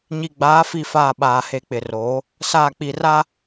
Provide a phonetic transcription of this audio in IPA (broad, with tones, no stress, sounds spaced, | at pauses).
ɲ i˨ ɡ͡b aː˨˦ f i˨ f aː˨ ɓ aː˨ h e˨ k͡p ɪ˨ r oː˨˦ | s aː˨ k͡p i˨ r a˦